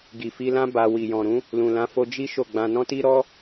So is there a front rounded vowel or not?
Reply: no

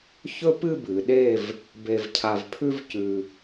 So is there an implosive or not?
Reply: yes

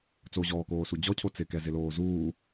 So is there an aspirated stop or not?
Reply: yes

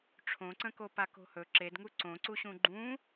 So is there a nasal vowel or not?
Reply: yes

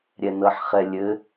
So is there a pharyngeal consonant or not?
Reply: yes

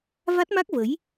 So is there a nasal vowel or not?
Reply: no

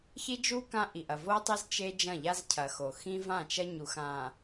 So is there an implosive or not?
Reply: no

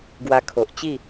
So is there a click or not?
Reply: no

